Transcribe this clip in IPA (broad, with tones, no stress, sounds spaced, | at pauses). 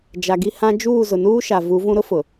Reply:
d͡ʒ a˨ ɡ i˦ h ã˦ d͡ʒ uː˦˨ z ʊ˨ n uː˦ ʃ a˨ v u˨˦ v ũ˦ ɾ ʊ˦ f ʊ˨